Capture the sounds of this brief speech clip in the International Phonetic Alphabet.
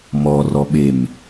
m ɔ r ɔ ɓ e m

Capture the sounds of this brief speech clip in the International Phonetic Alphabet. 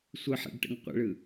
sʷ ɯ ħ ɛ̰ ɖ ʈ ə̰ ŋ qʷ ə̰ ɭ ɯ

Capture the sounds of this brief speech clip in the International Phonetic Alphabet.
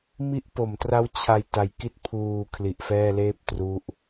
m i˦˥ ʔ p o˩˦ m t r a˦˥ w t͡ɕʰ a˧ j t a˨˩ j k i˦˥ t̚ pʰ uː˨˩ kʰ l i˨˩ ʔ f ɛː˥˩ l eː˥˩ p̚ t r u˦˥ ʔ

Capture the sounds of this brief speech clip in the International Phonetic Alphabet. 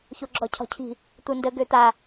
ç o ɡ͡ǁ ɔ cʰ ɔ̤ cʰ i̤ | t̪ u n d ə ɡ ø t̪ a

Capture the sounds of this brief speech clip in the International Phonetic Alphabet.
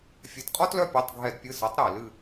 fʲ ɛ˩˥ t qʼ ɔ˦ t l œ˦˨ pʲ e˩˧˩ tˤ ɡʱ ɛ˧˩˧ d pʲ ɨ˩˧˩ s ɤ˩˥ tˤ ɾ e˧˩˧ l ɨ˦˨

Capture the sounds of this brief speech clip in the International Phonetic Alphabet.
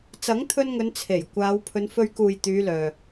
t͡s ɐ˨˥ ŋ t̪ʰ ɵ˧ n ŋ ɵ˨˧ n t͡sʰ e˨˩ j kʷ aː˨˧ w pʰ ɵ˨˧ n f ɵ˧ ɥ k uː˨ j t̪ yː˨˧ l œː˨

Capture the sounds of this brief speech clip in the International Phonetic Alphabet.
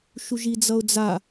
ʃ u ʒ i d͡z ʌ ʊ̯ d͡z a

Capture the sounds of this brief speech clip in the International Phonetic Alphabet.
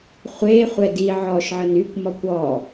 χʷ e χʷ ɛ d i ʕ ɔ ʃ ʕ ə n y kʷ m ɔ kʷ ɔ

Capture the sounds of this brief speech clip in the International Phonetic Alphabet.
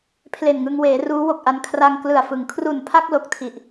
pʰ l e˨˩ n ŋ ɯ˧ ŋ w eː˩˦ r uː˦˥ w o˨˩ k̚ ʔ a˧ n kʰ r a˧ ŋ k l ɯ˨˩ a̯ f ɯ˩˦ ŋ kʰ r u˨˩ n pʰ a˥˩ k̚ l o˨˩ k̚ tʰ i˨˩ ʔ

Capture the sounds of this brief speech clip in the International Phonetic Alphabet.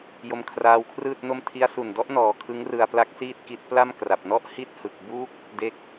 j o˦˥ m kʰ r aː˦˥ w kʰ r ɯː˥˩ t̚ n o˥˩ m tʰ i˦˥ a̯ s u˨˩ n d ɔ˦˥ ʔ n ɔː˨˩ kʰ ɯ˦˥ ŋ r ɯ˧ a̯ p l a˦˥ k̚ s iː˥˩ t̚ k i˦˥ t̚ p l a˥˩ m k r a˨˩ p̚ n ɔ˥˩ ʔ h i˥˩ t̚ h ɯ˨˩ k̚ b u˦˥ k̚ | d e˦˥ k̚

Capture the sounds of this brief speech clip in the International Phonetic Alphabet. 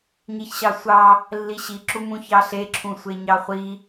ɲ i ç ɕ ɑ sʷ ɑ | lː i ɕ i ǁ u m ũ ç ɑ ɬ e ǁʰ ũ sʷ e ɲ ɑ χʷ i

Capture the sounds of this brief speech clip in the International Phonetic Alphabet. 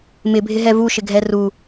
m ɪ bʱ ɪ ɦ ɛ v u ʃ ɪ ɡʱ ɛ r u

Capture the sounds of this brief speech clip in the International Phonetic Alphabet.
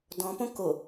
d ɔ̃ p õ k o

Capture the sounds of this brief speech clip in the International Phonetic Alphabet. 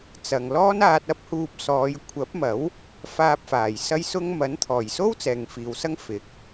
t͡s ɐ˨ ŋ l ɔː˥ n aː˧ t̚ ɐ˥ p̚ h uː˧ p̚ s ɔː˨˧ j kʷʰ ɐ˨˥ p̚ m ɐ˨˥ w | f aː˧ p̚ f aː˨˩ j s ɐ˥ j s ʊ˥ ŋ m ɐ˨˥ n t̪ʰ ɔː˨˩ j s o˥ w t͡s ɛː˨ ŋ f iː˨ w s ɐ˥ ŋ f ɪ˨˥ k̚

